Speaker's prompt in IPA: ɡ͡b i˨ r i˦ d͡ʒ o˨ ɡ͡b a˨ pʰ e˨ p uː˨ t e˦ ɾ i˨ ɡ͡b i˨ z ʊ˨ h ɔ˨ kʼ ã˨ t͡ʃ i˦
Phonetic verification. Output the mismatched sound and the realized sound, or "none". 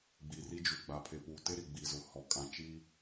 o˨ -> u˨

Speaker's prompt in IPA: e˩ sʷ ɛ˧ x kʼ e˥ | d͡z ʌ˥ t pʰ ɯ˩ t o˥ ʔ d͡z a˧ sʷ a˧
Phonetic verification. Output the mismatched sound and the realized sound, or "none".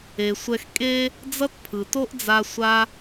none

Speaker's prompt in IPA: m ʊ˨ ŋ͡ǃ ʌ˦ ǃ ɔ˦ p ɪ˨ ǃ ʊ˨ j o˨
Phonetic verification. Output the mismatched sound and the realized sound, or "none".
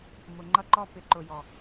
o˨ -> ɔ˨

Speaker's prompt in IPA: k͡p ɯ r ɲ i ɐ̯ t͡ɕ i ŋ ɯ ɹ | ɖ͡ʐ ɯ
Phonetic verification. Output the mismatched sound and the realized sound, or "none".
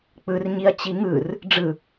ɹ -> r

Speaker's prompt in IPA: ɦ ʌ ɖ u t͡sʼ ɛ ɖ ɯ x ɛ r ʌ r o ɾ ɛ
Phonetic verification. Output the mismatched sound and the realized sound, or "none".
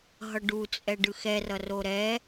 none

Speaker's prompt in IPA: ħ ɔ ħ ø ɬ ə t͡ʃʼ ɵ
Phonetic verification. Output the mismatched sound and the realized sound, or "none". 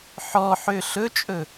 ə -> ɵ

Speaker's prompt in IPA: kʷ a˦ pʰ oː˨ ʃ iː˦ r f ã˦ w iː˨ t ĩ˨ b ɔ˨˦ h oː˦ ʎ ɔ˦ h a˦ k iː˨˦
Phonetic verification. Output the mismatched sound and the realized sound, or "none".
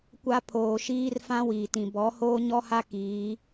ʎ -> ɲ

